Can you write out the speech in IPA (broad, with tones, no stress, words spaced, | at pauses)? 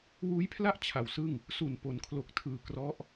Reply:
wuː˦˥jpʰla˥˩ʔ t͡ɕʰa˩˦wsɯ˥˩ŋ | su˨˩n po˩˦nkʰlo˨˩k̚tʰɯː˨˩ krɔ˦˥ʔ